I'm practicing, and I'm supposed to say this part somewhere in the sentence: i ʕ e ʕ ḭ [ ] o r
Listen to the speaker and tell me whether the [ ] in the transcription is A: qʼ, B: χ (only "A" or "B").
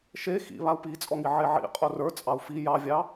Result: A